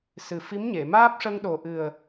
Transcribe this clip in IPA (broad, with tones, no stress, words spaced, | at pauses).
sɨ˨˩fi˧˥mɲe˨˩˨ maː˦˥p̚ʂə˧ŋɗo˨˩ʔɨ˨˩ə̯